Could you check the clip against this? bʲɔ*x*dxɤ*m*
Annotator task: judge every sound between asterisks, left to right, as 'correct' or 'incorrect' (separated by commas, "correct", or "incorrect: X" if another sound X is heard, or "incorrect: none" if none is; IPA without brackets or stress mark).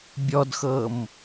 incorrect: none, correct